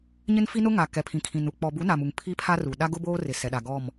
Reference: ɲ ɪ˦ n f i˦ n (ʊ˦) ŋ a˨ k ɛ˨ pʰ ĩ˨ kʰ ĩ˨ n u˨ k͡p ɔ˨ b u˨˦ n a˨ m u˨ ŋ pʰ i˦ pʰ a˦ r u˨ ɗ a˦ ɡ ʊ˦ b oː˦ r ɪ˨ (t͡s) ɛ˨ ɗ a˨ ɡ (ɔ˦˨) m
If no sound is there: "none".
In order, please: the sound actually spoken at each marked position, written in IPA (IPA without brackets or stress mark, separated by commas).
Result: ʊ˦, s, ɔ˦˨